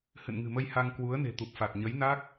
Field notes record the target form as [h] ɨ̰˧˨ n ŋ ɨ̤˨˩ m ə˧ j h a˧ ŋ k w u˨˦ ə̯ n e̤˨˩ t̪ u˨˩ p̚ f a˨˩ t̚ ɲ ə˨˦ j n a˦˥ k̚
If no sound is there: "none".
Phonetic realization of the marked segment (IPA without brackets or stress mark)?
h